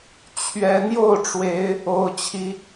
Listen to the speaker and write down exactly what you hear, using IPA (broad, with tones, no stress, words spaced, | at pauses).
t͡ɕʰɥɛ˨˦ n̪jo˥˨ʊ̯ʈ͡ʂwe˨˦ɪ̯ | o˦ʊ̯t͡ɕʰi˦